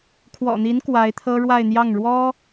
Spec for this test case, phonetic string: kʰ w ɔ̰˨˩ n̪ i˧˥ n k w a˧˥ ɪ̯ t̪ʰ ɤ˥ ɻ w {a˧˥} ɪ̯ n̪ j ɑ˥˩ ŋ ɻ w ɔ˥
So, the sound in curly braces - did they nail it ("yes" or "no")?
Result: no